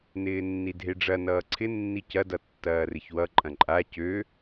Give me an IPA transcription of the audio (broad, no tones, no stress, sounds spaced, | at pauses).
n ɪː nː i dʱ e ɖ͡ʐ ɐ n ʌː ǀʰ ɪ nː i c ɐ d ʌ tː ɐː r ɪ ç w ʌ ǃʼ ɐ̃ ǃʼ a c ø